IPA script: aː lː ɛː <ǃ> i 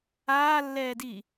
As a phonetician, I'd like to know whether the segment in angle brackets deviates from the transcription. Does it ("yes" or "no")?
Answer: yes